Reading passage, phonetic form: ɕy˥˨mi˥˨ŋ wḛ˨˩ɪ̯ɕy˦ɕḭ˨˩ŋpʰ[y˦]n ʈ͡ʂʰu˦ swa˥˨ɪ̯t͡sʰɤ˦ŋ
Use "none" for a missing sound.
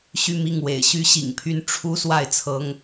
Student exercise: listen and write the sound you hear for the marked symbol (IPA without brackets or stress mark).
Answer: y˥˨